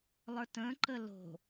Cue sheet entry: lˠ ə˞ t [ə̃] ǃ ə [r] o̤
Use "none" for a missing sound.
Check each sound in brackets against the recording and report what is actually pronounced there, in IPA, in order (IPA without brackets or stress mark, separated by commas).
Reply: ə̃, l